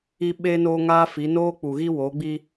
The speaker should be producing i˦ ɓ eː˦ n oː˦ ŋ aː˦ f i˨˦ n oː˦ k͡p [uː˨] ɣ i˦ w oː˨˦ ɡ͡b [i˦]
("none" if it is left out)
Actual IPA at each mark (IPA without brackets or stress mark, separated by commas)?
u˨, i˦